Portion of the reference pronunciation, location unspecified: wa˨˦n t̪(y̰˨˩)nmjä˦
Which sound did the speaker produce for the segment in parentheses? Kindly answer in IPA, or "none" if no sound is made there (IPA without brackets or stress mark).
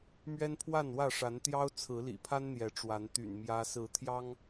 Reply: y̰˨˩